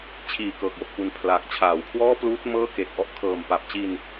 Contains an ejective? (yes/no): no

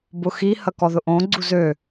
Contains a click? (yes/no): yes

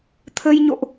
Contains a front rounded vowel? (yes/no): no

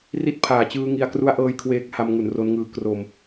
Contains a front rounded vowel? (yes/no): no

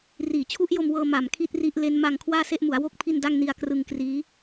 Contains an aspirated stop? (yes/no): yes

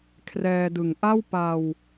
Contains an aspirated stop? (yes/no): yes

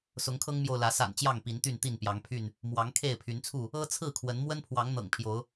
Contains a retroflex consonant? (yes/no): no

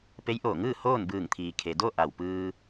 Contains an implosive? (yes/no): no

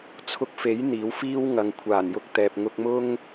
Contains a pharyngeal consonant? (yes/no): no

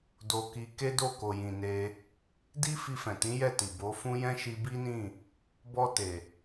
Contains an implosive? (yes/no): no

